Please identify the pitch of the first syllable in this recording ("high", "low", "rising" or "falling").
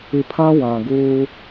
low